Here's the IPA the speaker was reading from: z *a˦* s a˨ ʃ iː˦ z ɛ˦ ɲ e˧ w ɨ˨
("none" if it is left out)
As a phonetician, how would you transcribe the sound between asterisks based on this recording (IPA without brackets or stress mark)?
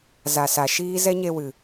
a˨